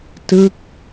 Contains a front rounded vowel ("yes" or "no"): no